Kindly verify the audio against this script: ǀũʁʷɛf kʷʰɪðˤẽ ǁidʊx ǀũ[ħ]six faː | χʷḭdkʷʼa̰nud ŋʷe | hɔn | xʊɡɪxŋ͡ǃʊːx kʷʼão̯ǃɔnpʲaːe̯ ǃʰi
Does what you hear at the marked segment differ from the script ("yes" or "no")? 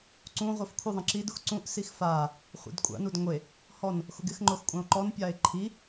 yes